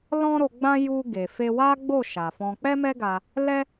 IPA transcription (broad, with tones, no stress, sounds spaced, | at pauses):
l ɔ̃˦ ɾ o˧ ɡ͡b ã˦ j u˧ ɡ e˨ f e˧ w a˦ ɡ͡b o˦˨ ʃ a˨ f ɔ̃˧ k͡p ɛ˦ m ɛ˦ ɡ a˧ | l ɛ˦